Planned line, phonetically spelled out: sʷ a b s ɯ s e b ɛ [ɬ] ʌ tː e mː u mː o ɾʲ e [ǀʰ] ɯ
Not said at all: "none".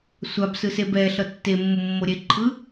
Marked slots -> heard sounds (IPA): ɬ, ǃʰ

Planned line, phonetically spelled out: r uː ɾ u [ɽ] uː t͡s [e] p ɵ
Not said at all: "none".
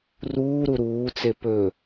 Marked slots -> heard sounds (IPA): ɾ, e

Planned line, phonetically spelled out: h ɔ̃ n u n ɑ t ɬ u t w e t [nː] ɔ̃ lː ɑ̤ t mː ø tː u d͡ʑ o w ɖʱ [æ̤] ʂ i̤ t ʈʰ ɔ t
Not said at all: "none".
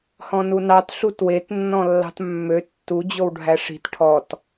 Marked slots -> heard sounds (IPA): nː, æ

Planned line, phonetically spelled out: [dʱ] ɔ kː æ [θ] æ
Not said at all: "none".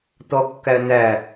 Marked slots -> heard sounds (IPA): t, n

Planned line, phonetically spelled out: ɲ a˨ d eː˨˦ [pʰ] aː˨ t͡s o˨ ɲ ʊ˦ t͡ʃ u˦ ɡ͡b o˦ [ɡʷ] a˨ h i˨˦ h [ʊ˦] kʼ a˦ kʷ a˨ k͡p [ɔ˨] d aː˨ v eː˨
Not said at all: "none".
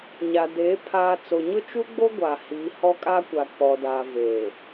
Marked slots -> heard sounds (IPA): pʰ, ɡʷ, ɔ˦, ɔ˨

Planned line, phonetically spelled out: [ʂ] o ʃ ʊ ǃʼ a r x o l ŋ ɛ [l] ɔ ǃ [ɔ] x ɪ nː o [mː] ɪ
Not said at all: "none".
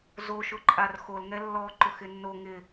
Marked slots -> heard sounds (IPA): z, lː, ʊ, ŋ

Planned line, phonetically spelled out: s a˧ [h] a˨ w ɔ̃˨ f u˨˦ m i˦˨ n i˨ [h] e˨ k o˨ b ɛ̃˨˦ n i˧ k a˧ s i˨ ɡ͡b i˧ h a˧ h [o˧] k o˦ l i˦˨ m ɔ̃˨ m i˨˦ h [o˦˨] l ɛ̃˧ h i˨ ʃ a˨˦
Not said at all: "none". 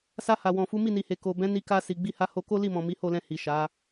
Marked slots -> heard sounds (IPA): h, h, o˧, o˦˨

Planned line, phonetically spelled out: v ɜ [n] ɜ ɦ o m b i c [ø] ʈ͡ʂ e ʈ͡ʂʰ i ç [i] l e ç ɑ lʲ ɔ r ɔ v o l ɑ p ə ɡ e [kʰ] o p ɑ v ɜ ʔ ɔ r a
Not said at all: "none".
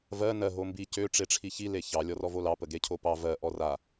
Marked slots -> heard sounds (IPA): n, ø, i, cʰ

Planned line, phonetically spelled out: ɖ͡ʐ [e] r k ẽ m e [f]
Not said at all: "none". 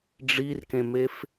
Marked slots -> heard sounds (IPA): i, f

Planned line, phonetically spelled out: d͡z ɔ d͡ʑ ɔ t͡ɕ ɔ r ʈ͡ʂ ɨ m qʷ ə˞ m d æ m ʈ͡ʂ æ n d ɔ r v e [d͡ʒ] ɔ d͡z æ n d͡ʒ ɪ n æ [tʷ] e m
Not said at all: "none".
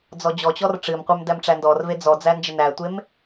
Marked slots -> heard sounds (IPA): d͡z, tʷ

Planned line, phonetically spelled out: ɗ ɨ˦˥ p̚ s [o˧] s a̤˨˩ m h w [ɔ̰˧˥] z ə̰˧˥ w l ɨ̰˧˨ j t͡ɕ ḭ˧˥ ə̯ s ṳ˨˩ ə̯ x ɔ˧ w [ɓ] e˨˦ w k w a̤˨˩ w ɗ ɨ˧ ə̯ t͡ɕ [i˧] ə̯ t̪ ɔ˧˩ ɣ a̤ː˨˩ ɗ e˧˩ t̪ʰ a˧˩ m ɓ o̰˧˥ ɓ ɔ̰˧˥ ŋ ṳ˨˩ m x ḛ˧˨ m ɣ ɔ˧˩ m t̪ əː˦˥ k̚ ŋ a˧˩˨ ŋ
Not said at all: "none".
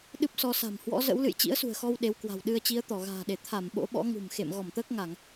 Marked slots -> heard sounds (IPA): ɔ˧, ɔ̰˧˥, ɗ, i˨˦

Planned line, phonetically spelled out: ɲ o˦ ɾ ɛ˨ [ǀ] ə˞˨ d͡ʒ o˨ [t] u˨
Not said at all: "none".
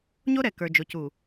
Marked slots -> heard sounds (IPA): k, c

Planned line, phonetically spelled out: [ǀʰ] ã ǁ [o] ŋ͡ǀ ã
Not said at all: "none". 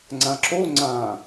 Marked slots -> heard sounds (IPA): ŋ͡ǀ, o

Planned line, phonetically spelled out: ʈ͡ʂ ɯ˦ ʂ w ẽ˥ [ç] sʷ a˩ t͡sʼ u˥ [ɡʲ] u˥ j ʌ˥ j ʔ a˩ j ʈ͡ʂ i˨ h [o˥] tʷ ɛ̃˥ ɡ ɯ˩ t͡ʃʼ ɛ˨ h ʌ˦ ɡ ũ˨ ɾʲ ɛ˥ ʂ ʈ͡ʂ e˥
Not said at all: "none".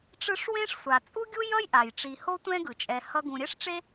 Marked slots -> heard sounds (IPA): ʂ, ɡʲ, o˥

